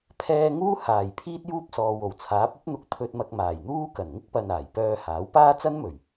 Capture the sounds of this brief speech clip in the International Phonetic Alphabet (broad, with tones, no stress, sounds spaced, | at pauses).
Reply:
pʰ ɛː˧ ŋ uː˥ h aː˨˩ j pʰ iː˥ t̚ j uː˥ p̚ s ɔː˨ w o˨˩ w t͡sʰ aː˨˥ p̚ ɐ˥ p̚ n̪ ʊ˧ k̚ t̪ʰ ɵ˧ t̚ m ɐ˧ k̚ m aː˨˩ j n̪ uː˥ k ɐ˨˩ n ŋ ɪ˥ k̚ p ɐ˧ n aː˨˩ j p œː˧ h aː˨˥ w p aː˥ t͡s ɐ˥ n m ɵ˨˩ ɥ